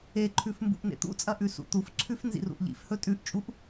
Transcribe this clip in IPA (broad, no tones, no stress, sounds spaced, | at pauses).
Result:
e ǃʰ ʉ f m b ṵ ʔ n ḛ t̪ ṵ t͡sʼ ɐ ʔ ʉ s ṵ t̪ u f ǀʰ ʉ f n z ḭ r ṵ ʔ ʎ ḭ f h ɵ tʼ ʉ ʔ t͡ʃʼ u ʔ